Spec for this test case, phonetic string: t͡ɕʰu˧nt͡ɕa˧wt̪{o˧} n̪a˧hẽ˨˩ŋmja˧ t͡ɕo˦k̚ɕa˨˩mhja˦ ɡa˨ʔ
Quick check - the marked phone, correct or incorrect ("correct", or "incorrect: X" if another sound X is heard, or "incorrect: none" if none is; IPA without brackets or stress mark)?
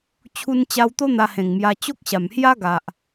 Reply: incorrect: o˦